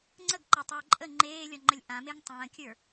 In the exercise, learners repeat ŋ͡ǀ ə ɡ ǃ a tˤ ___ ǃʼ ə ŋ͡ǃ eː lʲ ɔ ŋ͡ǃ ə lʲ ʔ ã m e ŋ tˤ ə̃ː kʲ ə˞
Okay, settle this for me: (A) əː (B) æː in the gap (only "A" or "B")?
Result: A